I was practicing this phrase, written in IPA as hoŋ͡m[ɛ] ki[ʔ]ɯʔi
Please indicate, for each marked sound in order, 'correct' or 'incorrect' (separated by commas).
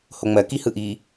incorrect, incorrect